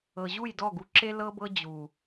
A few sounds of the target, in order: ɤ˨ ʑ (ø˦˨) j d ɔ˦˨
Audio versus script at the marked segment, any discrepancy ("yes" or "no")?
yes